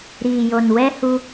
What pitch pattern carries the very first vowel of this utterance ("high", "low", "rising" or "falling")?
low